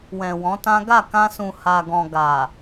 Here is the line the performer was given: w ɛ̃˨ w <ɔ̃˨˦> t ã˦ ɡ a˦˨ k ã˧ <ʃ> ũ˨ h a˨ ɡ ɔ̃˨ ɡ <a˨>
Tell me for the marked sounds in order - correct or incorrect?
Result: correct, incorrect: s, correct

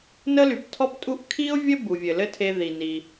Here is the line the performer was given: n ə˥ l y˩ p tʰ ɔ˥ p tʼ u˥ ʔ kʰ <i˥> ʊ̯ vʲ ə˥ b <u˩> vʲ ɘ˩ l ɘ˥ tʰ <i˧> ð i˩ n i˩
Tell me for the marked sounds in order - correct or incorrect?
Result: correct, correct, incorrect: e˧

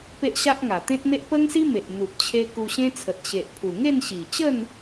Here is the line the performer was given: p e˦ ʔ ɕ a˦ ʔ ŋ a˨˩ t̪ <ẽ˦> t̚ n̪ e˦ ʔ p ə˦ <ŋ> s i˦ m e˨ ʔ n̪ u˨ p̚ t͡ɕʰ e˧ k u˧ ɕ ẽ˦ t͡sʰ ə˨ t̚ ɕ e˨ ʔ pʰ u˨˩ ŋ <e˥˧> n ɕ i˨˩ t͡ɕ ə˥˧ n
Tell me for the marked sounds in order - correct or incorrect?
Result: correct, correct, correct

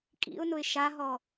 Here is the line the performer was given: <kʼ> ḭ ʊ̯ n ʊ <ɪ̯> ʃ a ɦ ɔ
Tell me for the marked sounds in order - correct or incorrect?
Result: correct, correct

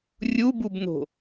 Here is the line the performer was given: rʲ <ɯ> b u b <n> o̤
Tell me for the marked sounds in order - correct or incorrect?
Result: incorrect: u, correct

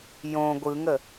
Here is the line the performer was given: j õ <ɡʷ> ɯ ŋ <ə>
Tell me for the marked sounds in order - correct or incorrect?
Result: correct, correct

